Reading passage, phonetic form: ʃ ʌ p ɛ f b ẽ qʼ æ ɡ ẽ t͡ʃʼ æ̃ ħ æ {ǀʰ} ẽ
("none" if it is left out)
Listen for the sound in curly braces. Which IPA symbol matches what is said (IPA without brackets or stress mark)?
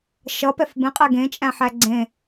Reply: ɡ͡ǀ